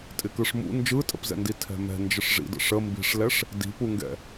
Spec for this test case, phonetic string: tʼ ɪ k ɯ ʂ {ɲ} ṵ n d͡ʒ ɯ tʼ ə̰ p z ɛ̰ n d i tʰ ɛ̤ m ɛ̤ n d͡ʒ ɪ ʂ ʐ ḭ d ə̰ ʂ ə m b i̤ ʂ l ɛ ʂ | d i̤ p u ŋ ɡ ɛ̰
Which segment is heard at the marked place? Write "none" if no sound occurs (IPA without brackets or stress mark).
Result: m